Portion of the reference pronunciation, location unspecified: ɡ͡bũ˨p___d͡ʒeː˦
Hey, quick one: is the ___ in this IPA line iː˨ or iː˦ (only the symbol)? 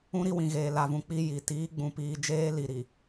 iː˨